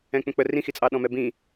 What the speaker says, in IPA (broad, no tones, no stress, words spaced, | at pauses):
ɛ̃k͡pə̃k͡pə rĩxit͡sʼɑɗɔ̃ mɛbĩ